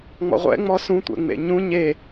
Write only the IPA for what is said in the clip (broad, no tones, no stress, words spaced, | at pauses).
ŋ͡mɔ̰ʁʷɛ̰ ŋ͡mɔsũ tʷɛ̰ŋ͡mḛɲũ ɲe